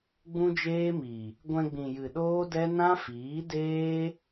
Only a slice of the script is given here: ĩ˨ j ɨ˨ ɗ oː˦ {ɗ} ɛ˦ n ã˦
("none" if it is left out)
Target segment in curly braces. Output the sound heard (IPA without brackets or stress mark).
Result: d